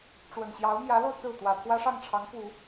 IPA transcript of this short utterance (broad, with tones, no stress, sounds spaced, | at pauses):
ʈ͡ʂ w ə˨˩ n ɕ j ɑ˧˥ ʊ̯ m j ä˧˥ l o˧ ʊ̯ t͡s ɹ̩˥˩ t̪ w ä˨˩ pʰ w ä˥ ʂ ɑ˥˩ ŋ ʈ͡ʂʰ ɑ˧˥ ŋ p u˨˩˦